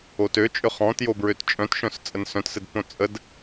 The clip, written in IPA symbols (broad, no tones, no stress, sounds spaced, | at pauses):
o t ø t͡ʃʼ ʏ χ ɔ̃ t j o b ɹ ø t t͡ʃʼ œ̃ t ʃ œ̃ s t͡sʼ ə n s œ̃ t s ɘ d p õ t͡sʼ ə d